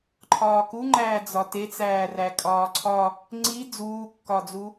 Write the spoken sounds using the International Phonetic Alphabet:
ǃʰɒːkuŋ͡ǃæː d͡zɒtet͡sæː rækʼɒːǀʰɒ | ŋ͡ǀi d͡zuːkːɒd͡zu

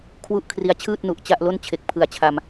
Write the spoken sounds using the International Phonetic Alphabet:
kʰwu˥˩ʔ kʰri˦˥a̯t͡ɕʰɯː˥˩t̚nu˨˩ʔ t͡ɕa˥˩ʔlo˥˩n t͡ɕʰe˨˩k̚pʰɯ˨˩a̯t͡ɕʰa˧m

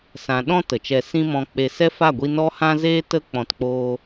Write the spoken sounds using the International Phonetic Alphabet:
sã˨ ɗɔ̃˧ tə˨t͡ʃɛ˧ sĩ˦mɔ̃˧k͡pe˧ sɛ˦fa˦˨ɡʷi˧ nɔ˧hã˧ zeː˧tə˧ k͡pɔ̃˧tk͡poː˦

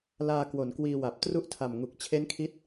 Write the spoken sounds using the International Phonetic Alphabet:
laː˧ kwo˩˦nkwiː˧wa˨˩p̚ tru˦˥ʔtʰa˨˩mŋu˨˩k̚ t͡ɕʰe˦˥nkʰi˦˥t̚

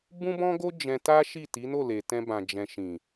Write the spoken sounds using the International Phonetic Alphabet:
bũ˦bɔ̃˦ɡo˦ d͡ʒɛ̃˧ta˦ ʃi˦˨ti˨˦no˦˨ le˨tɛ̃˧bã˨ d͡ʒɛ̃˨ʃĩ˨

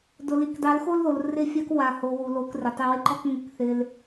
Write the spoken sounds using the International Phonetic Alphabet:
dʊ˨ li˨kdˤe˨˦lxo˦lðo˨l rɪ˦˨fʲa˦k wa˨ho˨ wu˨lo˨˦krɪ˨ tˤe˧wɪ˦ǃɔ˦k ŋɪ˦˨kθɪ˧l

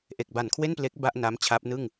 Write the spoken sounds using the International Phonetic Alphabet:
ʔe˨˩k̚ba˨˩nkʰwe˥˩nple˦˥k̚ ba˥˩ʔ na˦˥m t͡ɕʰa˦˥p̚nɯ˥˩ŋ

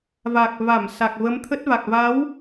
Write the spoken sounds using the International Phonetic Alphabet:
va˨˩k̚va˧˩m sa˨˩k̚və˨˦mt̪ʰə˦˥t̚va˨˩k̚ va˨˦w

